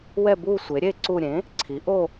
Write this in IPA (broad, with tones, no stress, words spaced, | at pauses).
wɛ˥˧bu˥˧sʷe˩˥ɾʲe˥˧ ǀu˥˧ ɾʲẽ˩˥ | ǀʰi˩˥ʔo˥˧